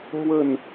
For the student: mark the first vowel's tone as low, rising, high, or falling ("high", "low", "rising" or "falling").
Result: falling